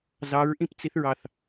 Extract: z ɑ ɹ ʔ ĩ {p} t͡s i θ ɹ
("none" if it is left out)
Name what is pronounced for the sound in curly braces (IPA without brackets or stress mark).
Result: p